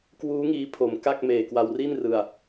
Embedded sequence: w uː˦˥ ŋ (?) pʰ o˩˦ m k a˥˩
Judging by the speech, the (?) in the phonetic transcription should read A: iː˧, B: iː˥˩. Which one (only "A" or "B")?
A